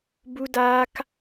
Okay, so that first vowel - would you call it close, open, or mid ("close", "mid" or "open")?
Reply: close